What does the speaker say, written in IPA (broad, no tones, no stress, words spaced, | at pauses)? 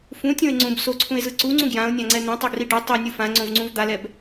fũtʲõe̯ ŋ͡ǀũb soǀʰũe̯zɯ ǀuŋ͡ǀũ ɡjão̯nʲãŋ͡ǀɛ n̪ẽtˤoɡri ɖu tˤinʲu fãŋ͡ǀõvŋ͡ǀũv d̪alɛb